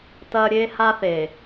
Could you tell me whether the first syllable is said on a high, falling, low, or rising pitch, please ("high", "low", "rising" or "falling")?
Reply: low